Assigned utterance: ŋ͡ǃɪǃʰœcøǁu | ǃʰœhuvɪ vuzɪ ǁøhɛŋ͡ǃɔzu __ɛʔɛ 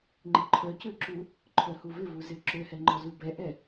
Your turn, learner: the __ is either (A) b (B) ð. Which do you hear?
A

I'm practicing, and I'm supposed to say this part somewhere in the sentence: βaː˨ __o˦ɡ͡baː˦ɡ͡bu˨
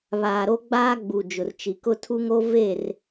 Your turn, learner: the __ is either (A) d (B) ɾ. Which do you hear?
B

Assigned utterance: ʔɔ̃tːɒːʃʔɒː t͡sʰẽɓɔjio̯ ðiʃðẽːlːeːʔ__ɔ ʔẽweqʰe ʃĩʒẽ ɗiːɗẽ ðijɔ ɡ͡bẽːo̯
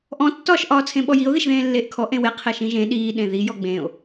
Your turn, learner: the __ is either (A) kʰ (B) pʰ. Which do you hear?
A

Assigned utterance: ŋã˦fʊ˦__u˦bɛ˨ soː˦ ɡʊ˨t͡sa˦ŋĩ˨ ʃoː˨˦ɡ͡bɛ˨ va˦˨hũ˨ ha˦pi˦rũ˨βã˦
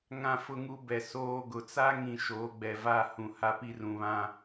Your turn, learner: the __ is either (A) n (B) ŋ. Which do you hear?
B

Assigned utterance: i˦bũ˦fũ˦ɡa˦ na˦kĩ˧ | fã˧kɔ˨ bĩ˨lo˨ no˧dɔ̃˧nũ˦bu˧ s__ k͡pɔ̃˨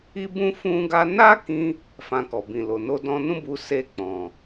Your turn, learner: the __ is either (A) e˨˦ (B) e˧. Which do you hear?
B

